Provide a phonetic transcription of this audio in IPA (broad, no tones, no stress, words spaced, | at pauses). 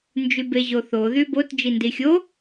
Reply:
nd͡ʒybeʑoθo ðybot d͡ʒindixʲo